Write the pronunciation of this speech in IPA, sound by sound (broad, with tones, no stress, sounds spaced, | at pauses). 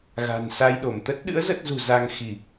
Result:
ɣ a̤˨˩ n s a˧ j ɗ o˧˩ m t̪ ə˦˥ t̚ ɗ ɨ̰˧˥ ə̯ z ə˦˥ t̚ z ṳ˨˩ z a˧ ŋ x i˧˩˨